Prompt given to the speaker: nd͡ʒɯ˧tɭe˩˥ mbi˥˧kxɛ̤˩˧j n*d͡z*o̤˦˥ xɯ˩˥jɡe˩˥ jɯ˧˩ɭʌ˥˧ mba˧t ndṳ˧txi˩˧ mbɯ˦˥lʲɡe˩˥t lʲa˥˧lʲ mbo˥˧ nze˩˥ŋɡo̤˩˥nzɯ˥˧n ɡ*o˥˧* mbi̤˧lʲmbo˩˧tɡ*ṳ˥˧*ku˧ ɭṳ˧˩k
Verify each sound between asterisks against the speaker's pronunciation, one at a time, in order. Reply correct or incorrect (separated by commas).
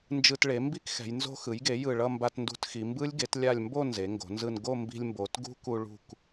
incorrect, correct, incorrect